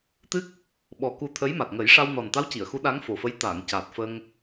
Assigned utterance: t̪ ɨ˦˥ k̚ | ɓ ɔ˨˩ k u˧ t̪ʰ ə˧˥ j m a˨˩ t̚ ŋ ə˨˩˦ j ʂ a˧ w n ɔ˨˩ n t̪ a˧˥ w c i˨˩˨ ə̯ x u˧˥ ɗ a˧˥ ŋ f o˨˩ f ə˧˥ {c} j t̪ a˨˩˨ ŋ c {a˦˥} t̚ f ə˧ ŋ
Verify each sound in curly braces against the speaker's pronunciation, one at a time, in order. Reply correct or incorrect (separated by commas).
incorrect, incorrect